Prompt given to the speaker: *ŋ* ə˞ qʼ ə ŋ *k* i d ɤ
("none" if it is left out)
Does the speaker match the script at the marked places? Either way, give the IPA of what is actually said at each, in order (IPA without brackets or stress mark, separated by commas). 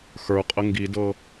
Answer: x, ɡ